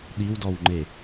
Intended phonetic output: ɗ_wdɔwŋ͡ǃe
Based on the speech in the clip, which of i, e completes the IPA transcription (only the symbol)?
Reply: i